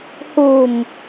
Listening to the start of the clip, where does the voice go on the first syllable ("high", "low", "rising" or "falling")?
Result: low